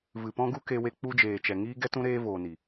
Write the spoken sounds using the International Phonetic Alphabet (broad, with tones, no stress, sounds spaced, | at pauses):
v ɨ˨ p ɔ̃˦ ɡ u˦ k e˧ w e˧ k͡p u˦ d͡ʒ eː˨ t͡ʃ ɛ˨ ŋ iː˦ ɡ ɛ˦ t ũ˦ ɾ eː˦ v oː˨ n i˨